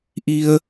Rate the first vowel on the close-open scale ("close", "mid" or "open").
close